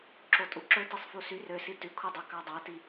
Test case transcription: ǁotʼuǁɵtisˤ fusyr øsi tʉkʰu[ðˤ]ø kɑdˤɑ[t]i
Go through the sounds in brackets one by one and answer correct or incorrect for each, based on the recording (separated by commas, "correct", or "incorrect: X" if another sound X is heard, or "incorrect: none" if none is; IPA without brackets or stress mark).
incorrect: dˤ, correct